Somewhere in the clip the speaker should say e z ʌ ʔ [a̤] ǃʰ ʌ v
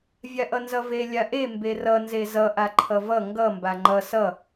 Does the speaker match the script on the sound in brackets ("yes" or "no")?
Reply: no